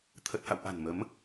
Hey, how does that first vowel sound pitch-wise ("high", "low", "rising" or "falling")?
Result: low